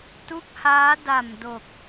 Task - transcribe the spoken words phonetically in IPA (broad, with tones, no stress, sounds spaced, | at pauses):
t u˦˥ k̚ h aː˦˥ d a˨˩ m d o˨˩ k̚